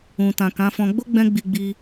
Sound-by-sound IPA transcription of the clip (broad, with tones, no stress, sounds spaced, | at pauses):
ũ˨ t ã˨ k ã˨˦ f ɔ̃˧ ɡ͡b o˦ ɡ͡b ɛ̃˧ ɡ͡b i˧ ɡ͡b i˧